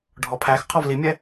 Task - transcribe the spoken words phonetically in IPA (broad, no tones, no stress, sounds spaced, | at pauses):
ɖʱ ɔ pʰ æ x qʰ ɔ v l i mʲ ɛ